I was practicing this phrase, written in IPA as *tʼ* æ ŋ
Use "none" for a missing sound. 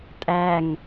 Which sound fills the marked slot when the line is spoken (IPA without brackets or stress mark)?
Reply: tʼ